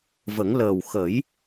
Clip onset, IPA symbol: v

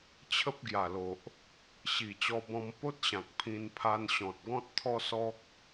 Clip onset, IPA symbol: t͡ɕʰ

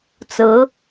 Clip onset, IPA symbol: t͡s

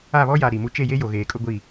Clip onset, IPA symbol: a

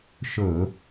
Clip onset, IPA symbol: ʃ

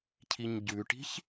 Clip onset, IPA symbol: cʰ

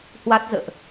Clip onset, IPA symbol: h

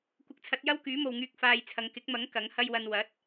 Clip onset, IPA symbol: kʷ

